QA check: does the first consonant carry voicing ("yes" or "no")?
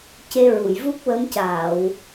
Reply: no